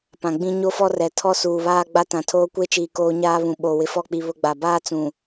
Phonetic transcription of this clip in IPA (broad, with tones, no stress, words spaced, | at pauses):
pã˨ɡ͡bĩ˦ ɲo˦fɔ˦rɛ˨ tʰɔ˦suː˨βaː˦ ɡ͡ba˦tã˨tʰoː˦ kʷe˦t͡ʃiː˨ koː˦ɲaː˦βũ˨ ɓo˨ wɪ˨fɔ˦˨k͡pi˨ βʊ˦ɡ͡ba˨ baː˦ t͡sũ˨